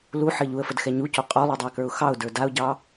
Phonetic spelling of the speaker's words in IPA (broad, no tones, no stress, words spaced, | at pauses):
luħɘ ʎuə̯fədxɛ ɲuco qʼolˠodˤɘɪ̯kə˞ʊ̯ xɑʊ̯də˞ daʊ̯ɟɑ